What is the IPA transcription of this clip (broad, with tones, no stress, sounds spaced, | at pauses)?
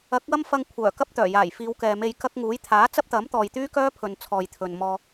ɐ˨˥ k̚ w ɐ˥ m f ɐ˧ ŋ kʷʰ œː˨˩ k ɐ˥ p̚ t̪ œː˨˩ j aː˨˩ j f iː˨˧ w k ɛː˨ m e˧ j k ɐ˥ k̚ ŋ uː˨˥ j t̪ʰ aː˨˥ t͡s ɐ˥ p̚ t̪ ɐ˨˥ m t̪ ɔː˨ j t̪ yː˥ k œː˥ pʰ ɵ˨ n t͡sʰ ɔː˨ j t̪ʰ ɵ˨ n m ɔː˧